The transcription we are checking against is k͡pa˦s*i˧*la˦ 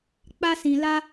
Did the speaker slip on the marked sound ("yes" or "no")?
yes